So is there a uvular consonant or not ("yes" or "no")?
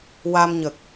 no